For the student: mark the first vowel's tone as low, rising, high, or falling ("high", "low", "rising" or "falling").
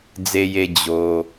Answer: low